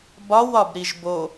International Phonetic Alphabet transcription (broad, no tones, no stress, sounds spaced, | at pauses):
b ɒ w ɒ b ɾ i ʒ b o